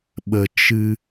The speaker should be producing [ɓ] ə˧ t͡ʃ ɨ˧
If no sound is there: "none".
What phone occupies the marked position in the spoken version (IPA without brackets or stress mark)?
ɓ